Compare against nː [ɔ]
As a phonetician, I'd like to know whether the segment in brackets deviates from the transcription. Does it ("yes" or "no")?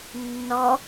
no